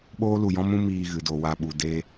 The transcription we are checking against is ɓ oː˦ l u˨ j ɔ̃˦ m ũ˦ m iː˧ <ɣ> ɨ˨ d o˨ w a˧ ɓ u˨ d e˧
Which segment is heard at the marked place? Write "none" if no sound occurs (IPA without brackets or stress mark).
ɣ